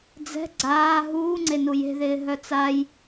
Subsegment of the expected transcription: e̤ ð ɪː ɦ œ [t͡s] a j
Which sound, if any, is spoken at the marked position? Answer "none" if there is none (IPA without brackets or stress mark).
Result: t͡s